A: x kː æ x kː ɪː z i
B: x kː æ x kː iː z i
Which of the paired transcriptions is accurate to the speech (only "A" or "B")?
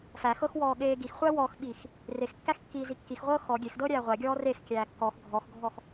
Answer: B